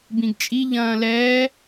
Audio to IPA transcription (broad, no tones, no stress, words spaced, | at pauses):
bĩɡt͡ʃʼi ʎɐ̃ːlɛː